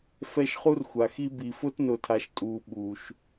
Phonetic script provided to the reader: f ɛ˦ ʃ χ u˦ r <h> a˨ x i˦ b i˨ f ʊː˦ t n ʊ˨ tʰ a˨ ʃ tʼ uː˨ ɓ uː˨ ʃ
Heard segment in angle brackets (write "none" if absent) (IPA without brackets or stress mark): xʷ